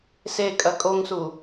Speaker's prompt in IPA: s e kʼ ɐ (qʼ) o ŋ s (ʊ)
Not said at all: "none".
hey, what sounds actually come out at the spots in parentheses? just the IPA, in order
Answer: kʼ, u

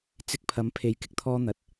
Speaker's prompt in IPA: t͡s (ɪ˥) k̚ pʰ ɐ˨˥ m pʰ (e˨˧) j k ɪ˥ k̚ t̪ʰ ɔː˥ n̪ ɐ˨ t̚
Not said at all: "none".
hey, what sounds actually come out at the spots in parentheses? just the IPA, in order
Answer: ɪ˧, e˨˧

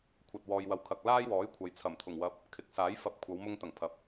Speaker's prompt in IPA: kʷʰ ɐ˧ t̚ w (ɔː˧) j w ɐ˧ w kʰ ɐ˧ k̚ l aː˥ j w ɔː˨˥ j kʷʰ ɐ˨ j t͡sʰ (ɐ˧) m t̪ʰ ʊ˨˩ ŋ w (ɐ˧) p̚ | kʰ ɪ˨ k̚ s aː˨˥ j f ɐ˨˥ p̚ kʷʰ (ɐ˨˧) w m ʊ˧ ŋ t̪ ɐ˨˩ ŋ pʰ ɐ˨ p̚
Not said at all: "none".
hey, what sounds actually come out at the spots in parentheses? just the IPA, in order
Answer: ɔː˧, ɐ˨˩, ɐ˧, ɐ˨˧

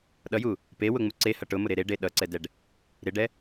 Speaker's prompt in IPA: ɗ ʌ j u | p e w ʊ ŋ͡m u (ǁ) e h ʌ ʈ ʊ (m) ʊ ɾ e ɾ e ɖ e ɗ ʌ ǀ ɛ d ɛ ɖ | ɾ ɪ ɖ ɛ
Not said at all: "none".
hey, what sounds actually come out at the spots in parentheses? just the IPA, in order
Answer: ǀ, m

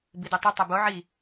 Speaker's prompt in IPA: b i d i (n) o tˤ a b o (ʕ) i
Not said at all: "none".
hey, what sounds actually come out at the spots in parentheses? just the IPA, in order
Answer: tˤ, ʕ

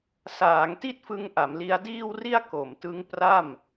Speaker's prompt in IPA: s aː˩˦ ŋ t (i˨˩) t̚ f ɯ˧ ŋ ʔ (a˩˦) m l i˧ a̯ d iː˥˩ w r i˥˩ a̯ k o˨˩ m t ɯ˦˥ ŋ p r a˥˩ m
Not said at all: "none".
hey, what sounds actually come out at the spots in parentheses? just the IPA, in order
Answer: i˥˩, a˩˦

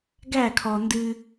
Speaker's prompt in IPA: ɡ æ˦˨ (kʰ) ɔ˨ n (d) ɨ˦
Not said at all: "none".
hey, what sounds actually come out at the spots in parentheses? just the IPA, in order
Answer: kʰ, d

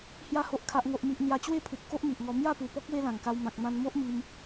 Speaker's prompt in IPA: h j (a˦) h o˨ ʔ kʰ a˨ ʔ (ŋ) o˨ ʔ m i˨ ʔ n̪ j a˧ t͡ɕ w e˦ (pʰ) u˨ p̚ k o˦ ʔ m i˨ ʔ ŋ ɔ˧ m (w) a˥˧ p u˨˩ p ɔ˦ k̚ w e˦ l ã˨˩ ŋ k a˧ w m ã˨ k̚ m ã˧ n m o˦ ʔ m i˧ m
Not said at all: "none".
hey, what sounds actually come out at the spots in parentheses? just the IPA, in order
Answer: a˧, ŋ, pʰ, j

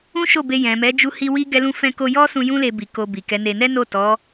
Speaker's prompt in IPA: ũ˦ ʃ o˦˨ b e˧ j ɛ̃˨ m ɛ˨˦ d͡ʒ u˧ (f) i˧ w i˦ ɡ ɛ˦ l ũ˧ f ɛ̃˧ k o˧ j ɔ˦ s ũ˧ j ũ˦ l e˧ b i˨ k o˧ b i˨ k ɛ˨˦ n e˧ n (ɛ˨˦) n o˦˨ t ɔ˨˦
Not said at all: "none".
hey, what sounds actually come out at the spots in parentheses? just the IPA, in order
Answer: h, ɛ˦

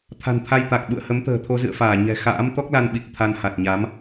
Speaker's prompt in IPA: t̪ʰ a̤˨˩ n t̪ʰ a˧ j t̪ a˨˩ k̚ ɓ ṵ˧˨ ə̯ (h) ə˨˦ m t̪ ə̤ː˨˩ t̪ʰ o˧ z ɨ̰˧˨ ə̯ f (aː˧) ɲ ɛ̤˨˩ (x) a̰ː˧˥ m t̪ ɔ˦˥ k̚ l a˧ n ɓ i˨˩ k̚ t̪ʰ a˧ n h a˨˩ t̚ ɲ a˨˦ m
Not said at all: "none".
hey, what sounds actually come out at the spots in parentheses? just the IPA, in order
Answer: h, aː˧˩, x

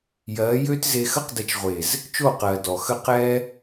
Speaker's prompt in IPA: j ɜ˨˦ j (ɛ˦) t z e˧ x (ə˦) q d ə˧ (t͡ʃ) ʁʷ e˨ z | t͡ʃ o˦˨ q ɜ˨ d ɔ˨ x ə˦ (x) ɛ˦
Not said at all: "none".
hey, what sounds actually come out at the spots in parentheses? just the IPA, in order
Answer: ø˦, ə˦, t͡ʃ, q

